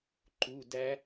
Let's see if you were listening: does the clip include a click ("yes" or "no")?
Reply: yes